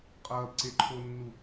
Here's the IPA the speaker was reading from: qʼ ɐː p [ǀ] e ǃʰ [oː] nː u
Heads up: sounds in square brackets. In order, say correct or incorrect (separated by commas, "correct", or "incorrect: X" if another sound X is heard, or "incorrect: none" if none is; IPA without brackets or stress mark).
correct, incorrect: o